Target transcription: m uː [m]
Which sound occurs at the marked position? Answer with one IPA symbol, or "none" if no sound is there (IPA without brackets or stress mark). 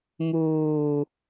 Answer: none